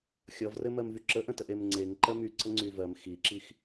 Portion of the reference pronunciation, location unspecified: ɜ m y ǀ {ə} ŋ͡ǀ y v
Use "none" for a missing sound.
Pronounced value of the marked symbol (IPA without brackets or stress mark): ə